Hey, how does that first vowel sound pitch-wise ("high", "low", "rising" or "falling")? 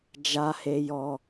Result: high